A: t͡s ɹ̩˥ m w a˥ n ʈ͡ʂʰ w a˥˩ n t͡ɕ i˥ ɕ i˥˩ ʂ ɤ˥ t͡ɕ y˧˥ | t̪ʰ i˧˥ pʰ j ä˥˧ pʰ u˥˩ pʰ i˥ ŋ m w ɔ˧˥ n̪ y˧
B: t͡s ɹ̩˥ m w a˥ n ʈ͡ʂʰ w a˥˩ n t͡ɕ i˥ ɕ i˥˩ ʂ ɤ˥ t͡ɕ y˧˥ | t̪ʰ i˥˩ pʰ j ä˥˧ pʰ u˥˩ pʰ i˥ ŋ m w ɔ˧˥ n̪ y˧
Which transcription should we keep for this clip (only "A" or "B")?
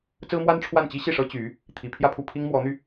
A